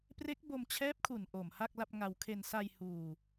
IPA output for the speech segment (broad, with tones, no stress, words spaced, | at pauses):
pre˦˥k̚bo˧mt͡ɕʰɛː˦˥p̚kʰu˨˩n ʔo˨˩mha˥˩k̚la˥˩p̚ŋa˧w kʰe˧n sa˧j huː˧